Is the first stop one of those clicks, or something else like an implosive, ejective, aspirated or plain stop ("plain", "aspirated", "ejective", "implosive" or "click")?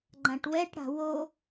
click